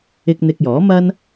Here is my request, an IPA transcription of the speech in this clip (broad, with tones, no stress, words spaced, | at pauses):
ɪ˥k̚ n̪ɪ˧k̚ jɔː˨˥mɐ˥n